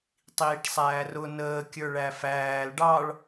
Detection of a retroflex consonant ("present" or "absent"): present